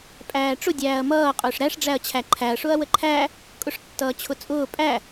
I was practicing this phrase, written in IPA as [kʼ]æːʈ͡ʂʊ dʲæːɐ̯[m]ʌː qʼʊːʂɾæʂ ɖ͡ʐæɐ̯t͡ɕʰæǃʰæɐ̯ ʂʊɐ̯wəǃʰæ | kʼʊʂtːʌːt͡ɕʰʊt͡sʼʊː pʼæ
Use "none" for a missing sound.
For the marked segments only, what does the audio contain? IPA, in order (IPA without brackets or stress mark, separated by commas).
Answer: pʼ, m